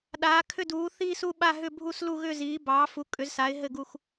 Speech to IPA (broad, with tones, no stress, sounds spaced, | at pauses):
ɗ aː˨˥ kʰ ʏ˥˧ d uː˨˥ θ iː˥˧ s u˥˧ ɓ a˥˧ ɦ ʏ˥˧ bʱ u˥˧ s l u˥˧ ɣ ʏ˥˧ z iː˨˥ b ɑː˨˥ f u˨˥ kʼ ʏ˨˥ z s aː˨˥ ɪ̯ ɦ ɘ˥˧ ɡ u˥˧ x